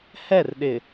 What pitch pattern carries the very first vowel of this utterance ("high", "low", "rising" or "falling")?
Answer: falling